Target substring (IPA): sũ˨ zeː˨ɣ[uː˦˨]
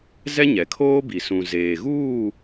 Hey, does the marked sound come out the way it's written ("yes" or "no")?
yes